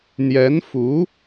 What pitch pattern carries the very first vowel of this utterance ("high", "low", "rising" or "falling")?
rising